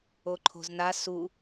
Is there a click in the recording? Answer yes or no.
yes